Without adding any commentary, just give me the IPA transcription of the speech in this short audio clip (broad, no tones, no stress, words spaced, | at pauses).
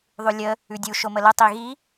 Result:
ðˤʉlʲə | ʉdʲu ʃomələ tˤiɣi